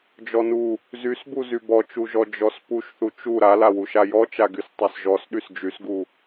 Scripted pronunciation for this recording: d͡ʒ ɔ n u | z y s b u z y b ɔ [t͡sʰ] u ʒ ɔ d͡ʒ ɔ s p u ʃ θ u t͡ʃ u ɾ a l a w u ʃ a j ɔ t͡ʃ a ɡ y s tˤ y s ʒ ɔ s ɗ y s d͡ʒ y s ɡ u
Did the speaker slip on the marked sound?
yes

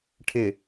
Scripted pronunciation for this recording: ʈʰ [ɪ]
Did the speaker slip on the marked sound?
no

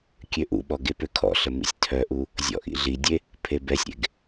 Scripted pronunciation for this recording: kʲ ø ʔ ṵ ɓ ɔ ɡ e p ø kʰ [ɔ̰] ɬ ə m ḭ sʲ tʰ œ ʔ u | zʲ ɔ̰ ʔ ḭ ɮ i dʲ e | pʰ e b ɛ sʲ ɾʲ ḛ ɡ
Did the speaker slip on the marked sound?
no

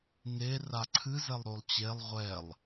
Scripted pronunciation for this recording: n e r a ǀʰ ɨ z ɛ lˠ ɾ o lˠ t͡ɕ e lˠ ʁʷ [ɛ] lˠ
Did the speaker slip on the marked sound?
no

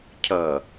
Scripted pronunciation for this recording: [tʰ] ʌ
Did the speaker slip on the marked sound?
yes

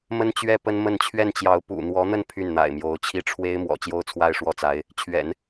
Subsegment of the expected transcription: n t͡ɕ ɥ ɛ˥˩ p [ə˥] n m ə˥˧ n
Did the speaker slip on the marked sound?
no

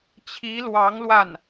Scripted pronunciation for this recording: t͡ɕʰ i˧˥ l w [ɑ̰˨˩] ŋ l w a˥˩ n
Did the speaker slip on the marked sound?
yes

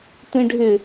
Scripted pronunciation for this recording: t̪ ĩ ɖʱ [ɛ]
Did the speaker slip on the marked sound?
yes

